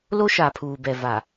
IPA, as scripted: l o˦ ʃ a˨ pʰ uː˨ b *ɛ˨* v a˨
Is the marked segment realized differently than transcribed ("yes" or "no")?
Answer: no